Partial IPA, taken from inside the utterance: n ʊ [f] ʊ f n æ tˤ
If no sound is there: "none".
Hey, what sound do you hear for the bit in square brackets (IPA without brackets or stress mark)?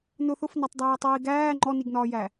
θ